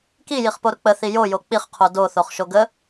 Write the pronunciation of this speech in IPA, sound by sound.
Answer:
k i j i χ p o ɾ ʊ k͡p ə θ i j o j o k͡p i χ qʰ o d o θ o χ ʃ o ɡ ə

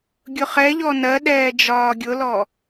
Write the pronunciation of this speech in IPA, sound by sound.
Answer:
ɡʲ ʊ χ ɛ ʎ ɔ n ɜ ɗ ɛː d͡ʒ ɒː ɡʲ ʊ l ɔ

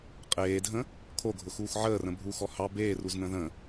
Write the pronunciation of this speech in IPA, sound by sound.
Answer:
qʼ eː dʱ ə̃ | kʰ o ɡʱ ʊ x uː x ʕ əː r ə̃ bʱ u x ɔ h ɑ b eː r u z n ə̃ ð ə̃

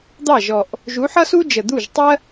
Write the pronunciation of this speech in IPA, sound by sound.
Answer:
d̪ ɑ˥˩ ʒ ɔ˨˩ ʔ | ʒ u˨˥ ħ ʌ˥ s u˥ d͡ʒ ə˨˩ d̪ u˥˩ ʒ tˤ ɜ˥

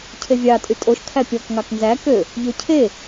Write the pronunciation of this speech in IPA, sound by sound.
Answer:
cʰ e vʲ ɑ tʼ y tʼ o ʃ kʰ æ pʲ ɔ k ŋ ɑ k n z æ k ø | ʎ ø cʰ e

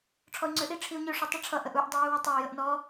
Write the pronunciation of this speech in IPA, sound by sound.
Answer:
ʈ͡ʂʰ ɔ y̯ ŋ͡ǀ ø ʔ i ʈ͡ʂʰ i u̯ ɲ ø ʂ u tˤ i ʈ͡ʂʰ ʌ ʔ ə ʔ u ʔ dˤ i j u w ɔ tˤ ø y̯ j ə ʔ n ɔ

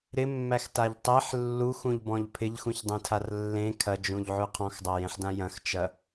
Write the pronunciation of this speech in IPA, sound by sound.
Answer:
ɾ ɪ mː æ x t a ʎ tˤ e ħ lː u x ũ ʎ b ɔ̃ ʎ pʰ ɪ ʎ x ũ ç dˤ ẽ tʰ a r lː ẽ kʰ ɐ d͡ʒ ũ ʎ ʕ ʉ qʰ ɔ̃ x dˤ a j ẽ ħ d ã j ɐ̃ x t͡ʃ ɐ

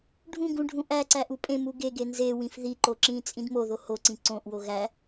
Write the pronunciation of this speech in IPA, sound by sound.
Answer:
ɖʱ ũ ɡ ũ ɖʱ ũ ʔ æ ǀ æ ʔ u pʼ ẽ m u ɡ e ɡ e n z e w ĩ f ð i ǃ o ǁ ĩː t͡sʼ ĩ d m o ð o h o ǀ ĩ ǀ õ ʔ w o ɣ æ

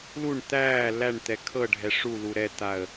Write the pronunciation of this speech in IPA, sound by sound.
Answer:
l u ɳ t̪ æː l æ ɳ t̪ ɛ kʰ ɤ ɖʱ ɛ ʂ u l u ɾ ɛ t̪ a ə̯

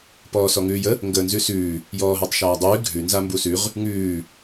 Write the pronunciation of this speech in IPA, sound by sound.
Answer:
p ɔː s ɔ ŋ ʉː j ə | ŋ ɡ əː n z ʉ s ʉː | j ɔː ɦ əː tˤ ʃ aː dˤ ʉː ɡʱ ʉ n z a m b u s ʉ ʁ | ŋ ʉː

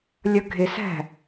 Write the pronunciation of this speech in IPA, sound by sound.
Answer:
lʲ ʌ ɡʱ ɪ s æ̤

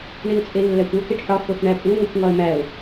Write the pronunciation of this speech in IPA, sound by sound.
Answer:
ɳ i ʊ̯ t͡sʼ e lː æ kʷ o k e ʈ ħ ɒ x o x ɳ æ pʼ u ŋʷ i kʷ ŋ ɒ ə̯ m æ ʊ̯

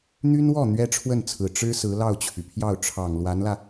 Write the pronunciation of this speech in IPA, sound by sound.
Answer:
n̪ y˥ n w ɔ˥˩ n̪ ɥ ɛ˥ ʈ͡ʂʰ w ə˥˩ n t͡sʰ ɹ̩˨˩ ʈ͡ʂ ɻ̩˥ s ɹ̩˧˥ l ɑ˥˩ ʊ̯ t͡ɕʰ y˩ pʰ j ɑ˥˩ ʊ̯ ʈ͡ʂʰ ɑ˨˩ ŋ l w a˧˥ n l ä˧

